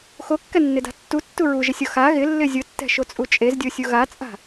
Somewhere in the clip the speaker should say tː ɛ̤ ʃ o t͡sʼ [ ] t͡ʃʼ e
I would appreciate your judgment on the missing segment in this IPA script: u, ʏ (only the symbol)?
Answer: u